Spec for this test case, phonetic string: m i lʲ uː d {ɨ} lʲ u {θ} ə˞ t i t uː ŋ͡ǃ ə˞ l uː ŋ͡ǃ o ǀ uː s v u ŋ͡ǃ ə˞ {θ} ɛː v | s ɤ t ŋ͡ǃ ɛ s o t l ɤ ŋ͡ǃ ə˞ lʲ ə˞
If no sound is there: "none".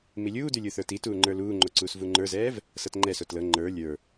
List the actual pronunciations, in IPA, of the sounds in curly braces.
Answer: ʉ, θ, z

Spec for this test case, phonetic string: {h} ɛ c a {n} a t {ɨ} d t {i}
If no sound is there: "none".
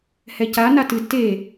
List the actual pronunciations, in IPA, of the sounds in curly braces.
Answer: h, n, ɨ, e

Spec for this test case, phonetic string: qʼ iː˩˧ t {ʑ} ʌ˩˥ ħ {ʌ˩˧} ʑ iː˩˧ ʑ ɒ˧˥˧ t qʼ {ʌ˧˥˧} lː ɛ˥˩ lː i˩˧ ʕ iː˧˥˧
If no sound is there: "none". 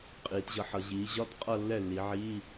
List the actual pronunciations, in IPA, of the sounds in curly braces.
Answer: ʑ, ʌ˩˧, ʌ˥˧

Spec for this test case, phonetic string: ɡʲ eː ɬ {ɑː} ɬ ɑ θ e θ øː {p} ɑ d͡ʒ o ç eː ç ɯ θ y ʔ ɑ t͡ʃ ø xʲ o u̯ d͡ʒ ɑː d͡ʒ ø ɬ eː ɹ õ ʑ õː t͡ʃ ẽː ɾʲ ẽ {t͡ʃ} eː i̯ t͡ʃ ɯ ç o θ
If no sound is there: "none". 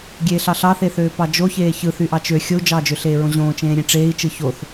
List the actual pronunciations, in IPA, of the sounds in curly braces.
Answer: ɑ, p, ʈ͡ʂ

